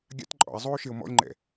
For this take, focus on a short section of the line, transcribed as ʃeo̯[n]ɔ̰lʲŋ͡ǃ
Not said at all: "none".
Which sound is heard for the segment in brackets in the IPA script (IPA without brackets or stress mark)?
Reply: m